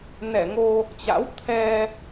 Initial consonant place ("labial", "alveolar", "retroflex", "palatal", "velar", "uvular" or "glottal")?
alveolar